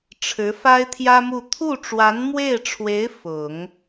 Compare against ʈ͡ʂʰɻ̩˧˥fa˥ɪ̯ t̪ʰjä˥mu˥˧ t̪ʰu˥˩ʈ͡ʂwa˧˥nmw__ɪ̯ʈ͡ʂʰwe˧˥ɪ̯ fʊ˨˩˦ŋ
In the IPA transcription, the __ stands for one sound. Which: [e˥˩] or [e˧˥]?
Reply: e˥˩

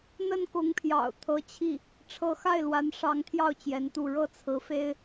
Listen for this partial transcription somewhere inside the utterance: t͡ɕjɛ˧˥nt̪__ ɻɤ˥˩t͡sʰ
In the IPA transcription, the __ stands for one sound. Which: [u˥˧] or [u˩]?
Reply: u˥˧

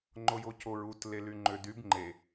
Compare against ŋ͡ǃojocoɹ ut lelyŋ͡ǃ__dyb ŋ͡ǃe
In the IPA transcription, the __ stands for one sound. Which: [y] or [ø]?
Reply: ø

